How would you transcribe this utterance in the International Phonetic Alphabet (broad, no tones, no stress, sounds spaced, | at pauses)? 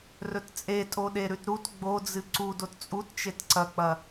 r ɵ t t͡sʼ e tʼ o ɗ e ɾ ʉ t ɾ u t ɡ͡b o d͡z ɨ ǀ u d o t t͡sʼ u t t͡ʃ e t ǀ ɐ k͡p ɐ